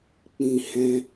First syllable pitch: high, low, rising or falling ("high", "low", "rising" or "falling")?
low